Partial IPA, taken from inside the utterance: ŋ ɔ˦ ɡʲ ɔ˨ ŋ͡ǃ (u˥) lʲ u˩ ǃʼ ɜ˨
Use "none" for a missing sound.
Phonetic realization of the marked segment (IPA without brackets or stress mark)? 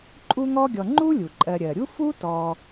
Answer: u˥